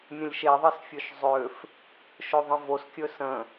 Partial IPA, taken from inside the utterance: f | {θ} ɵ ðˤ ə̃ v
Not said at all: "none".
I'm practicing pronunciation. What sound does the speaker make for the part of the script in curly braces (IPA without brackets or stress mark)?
ʃ